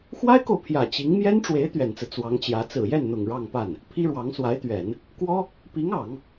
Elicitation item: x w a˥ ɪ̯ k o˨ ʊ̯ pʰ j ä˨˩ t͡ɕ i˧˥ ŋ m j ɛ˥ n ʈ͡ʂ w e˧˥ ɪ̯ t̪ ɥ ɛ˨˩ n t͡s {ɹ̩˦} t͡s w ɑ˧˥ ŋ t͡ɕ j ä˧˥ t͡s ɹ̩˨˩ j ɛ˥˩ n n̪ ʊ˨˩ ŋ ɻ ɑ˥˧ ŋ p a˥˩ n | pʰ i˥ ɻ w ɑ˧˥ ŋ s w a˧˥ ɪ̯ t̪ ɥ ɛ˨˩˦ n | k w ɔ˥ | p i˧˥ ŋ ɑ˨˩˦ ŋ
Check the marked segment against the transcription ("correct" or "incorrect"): correct